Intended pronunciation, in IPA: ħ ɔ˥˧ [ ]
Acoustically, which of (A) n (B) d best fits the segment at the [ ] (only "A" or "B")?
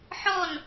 A